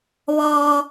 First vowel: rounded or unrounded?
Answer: rounded